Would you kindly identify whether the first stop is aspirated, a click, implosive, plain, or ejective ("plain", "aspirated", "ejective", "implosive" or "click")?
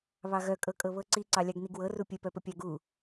ejective